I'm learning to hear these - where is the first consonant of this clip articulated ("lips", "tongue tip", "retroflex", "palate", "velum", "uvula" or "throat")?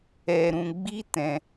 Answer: tongue tip